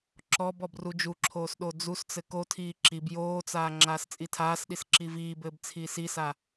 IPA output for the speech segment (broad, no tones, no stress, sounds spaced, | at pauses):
ǁ ɔ b ɔ b r u d͡ʒ u ǁʰ oː s ɗ o d͡z u s t͡s ɘ k o tʰ iː ǁ i b j oː t͡s aː ŋ͡ǁ aː s t͡sʼ i tʰ aː s ɗ i s ǁ i v iː b ɘː b t͡sʰ iː s i s a